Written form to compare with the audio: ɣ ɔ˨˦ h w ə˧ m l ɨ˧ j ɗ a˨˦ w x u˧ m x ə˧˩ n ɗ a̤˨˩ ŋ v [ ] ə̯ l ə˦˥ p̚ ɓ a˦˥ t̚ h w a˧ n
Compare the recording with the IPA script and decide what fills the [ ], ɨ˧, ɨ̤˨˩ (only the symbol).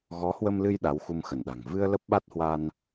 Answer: ɨ˧